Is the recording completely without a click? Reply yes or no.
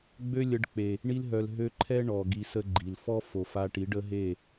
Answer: no